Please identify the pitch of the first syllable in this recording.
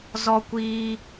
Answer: high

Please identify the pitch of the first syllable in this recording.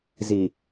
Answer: low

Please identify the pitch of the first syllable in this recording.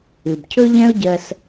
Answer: low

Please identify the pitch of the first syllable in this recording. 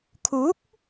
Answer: rising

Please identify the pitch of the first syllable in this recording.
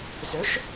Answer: rising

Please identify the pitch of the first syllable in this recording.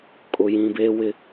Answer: low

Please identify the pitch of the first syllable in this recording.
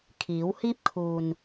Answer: rising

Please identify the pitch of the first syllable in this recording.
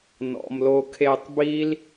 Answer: low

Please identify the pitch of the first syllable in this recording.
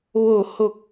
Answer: falling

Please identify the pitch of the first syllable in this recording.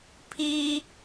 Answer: high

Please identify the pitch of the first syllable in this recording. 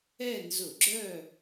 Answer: falling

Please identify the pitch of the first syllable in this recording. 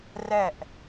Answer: falling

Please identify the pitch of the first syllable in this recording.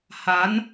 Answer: rising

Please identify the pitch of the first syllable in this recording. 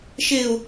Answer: low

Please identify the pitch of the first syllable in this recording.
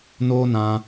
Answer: high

